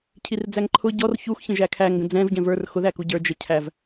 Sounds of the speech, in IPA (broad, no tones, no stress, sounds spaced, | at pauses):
cʰ i r d͡z æ ŋ ǃʰ ʊ ɟ ɔ r ç u x ç ə̃ ʒ æ kʰ æ ŋ ɡ ə̃ d͡z ɛ̃ v ɟ ɛ̃ v ə˞ r x ʊ ð æ k u ɟ ə˞ d͡ʒ ə cʰ æ v